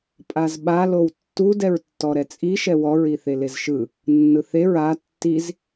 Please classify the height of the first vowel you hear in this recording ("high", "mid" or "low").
low